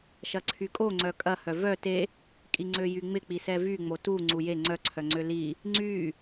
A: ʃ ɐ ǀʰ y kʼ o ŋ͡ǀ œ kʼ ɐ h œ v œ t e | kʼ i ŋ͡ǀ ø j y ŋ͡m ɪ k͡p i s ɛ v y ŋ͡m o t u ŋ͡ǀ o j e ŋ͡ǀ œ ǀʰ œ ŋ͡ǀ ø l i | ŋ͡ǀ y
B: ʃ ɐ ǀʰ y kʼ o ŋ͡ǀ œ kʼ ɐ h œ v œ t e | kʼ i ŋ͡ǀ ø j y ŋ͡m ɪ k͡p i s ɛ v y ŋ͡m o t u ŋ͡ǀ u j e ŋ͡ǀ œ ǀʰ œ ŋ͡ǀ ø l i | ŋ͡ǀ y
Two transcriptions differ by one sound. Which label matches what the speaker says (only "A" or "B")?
B